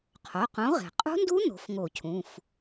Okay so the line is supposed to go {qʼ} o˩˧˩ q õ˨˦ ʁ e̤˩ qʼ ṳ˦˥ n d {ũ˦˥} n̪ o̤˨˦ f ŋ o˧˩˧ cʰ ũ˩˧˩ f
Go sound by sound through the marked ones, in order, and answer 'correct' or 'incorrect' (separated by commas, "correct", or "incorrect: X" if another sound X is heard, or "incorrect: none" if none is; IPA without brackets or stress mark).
incorrect: qʰ, incorrect: u˦˥